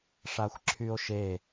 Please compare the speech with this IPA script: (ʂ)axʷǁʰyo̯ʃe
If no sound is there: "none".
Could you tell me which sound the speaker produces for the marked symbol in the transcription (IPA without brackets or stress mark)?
ʂ